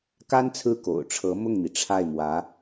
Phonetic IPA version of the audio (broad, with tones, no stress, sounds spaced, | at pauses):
k a˥ n t͡sʰ ɹ̩˥˩ k o̰˨˩ ʊ̯ ʈ͡ʂʰ ɤ˧˥ m ʊ˥˩ ŋ n̪ i˩ ʈ͡ʂʰ a˥˩ ɪ̯ m w ä˧˥